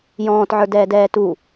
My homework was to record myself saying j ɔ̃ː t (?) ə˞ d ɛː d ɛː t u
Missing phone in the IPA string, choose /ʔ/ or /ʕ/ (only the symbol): ʕ